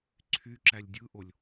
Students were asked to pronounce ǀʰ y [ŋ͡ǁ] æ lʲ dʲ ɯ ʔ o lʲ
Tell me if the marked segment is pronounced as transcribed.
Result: no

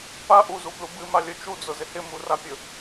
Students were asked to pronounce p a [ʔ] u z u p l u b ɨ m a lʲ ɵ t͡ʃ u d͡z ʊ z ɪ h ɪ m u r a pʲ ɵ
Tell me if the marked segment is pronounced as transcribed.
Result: yes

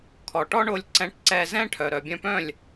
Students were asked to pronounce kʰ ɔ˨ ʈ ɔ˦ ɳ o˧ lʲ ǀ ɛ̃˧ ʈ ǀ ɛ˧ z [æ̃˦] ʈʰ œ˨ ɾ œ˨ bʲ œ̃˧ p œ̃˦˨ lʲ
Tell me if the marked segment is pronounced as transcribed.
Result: no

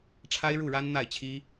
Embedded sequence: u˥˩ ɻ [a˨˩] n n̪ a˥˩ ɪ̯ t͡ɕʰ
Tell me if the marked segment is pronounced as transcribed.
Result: no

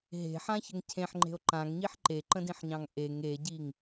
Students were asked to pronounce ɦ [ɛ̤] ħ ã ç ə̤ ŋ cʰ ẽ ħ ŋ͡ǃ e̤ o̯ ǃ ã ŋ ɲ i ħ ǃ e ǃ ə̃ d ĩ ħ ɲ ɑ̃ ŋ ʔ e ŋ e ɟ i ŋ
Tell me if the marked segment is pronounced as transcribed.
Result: no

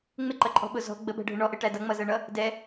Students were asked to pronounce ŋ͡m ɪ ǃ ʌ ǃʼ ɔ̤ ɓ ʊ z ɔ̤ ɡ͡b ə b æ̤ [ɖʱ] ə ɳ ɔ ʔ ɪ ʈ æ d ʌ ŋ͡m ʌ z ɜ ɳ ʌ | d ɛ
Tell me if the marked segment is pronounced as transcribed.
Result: yes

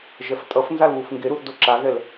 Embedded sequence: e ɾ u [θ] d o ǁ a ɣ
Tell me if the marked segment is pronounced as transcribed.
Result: yes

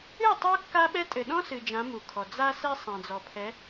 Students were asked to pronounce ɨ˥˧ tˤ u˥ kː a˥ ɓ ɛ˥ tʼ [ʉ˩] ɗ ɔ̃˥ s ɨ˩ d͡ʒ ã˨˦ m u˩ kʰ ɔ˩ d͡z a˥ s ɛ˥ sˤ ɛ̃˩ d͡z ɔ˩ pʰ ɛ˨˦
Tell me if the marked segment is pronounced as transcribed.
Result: no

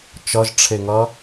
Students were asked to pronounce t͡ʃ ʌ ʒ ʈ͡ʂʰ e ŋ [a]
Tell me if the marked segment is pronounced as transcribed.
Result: no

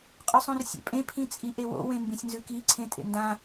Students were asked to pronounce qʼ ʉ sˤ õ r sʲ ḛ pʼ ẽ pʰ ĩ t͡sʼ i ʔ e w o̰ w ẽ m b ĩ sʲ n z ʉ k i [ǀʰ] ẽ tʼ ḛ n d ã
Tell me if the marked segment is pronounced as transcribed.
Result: yes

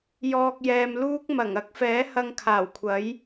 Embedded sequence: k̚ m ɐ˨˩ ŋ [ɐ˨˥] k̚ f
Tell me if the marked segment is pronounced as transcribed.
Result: yes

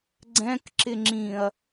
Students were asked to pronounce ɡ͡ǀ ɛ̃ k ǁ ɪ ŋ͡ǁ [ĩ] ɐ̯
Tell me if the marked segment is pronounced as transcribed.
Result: yes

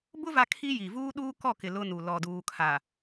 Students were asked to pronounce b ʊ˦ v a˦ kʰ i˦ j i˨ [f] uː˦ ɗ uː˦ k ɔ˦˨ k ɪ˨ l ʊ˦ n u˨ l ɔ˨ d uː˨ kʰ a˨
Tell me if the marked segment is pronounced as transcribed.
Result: no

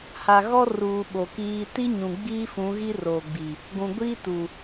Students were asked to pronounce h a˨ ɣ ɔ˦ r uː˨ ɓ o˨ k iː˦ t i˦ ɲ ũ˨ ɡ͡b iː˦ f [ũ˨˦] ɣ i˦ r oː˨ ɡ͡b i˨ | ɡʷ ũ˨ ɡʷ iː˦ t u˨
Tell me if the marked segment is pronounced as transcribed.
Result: yes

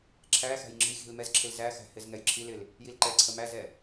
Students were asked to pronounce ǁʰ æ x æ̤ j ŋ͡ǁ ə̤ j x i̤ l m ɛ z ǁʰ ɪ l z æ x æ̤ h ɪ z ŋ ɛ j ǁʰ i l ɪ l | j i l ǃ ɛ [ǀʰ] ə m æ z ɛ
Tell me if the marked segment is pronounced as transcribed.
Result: yes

